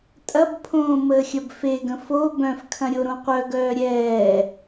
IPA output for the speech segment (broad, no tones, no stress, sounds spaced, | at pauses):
tʼ ɐ b pʰ õː m əː xʲ ɐ b f e ɡ ə̃ f o b œ̃ f kʰ ɐ̃ ɾʲ o ɾ õ qʷ œ ɡ œː ɾʲ ɛː